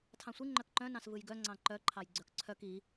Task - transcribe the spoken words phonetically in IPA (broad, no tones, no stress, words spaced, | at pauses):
tʰɑ̃sʷi ŋ͡ǃœkǃœ̃ nɑ̃svɯjɡœ ŋ͡ǀɑ̃ǃœ ǃʰɑjɡ͡ǀœkǀʰœk i